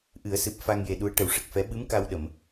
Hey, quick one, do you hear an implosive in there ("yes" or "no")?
yes